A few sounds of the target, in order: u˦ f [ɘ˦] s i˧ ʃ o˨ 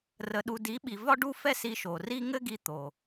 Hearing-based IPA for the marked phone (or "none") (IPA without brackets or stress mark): ɛ˦